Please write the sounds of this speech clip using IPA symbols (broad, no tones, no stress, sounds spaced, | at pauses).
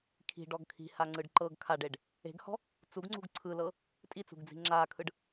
kʰ i̤ ɖ ɔ ɡ kʰ i̤ h a ŋ͡ǀ ɯ ɖ ǃ ɤ ɡ kʰ a ɖ e ɖ | e̤ ɡ h ɔ̤ | t͡s u ɡ ŋ͡ǀ ṳ ɡ ǀʰ ɯ l ɤ | tʼ i t͡s ṳ ɡ d͡z i̤ ŋ͡ǁ aː kʰ ɯ ɖ